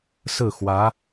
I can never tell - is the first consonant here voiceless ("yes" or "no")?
yes